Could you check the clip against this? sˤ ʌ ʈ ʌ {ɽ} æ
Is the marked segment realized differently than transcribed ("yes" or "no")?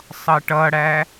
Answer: no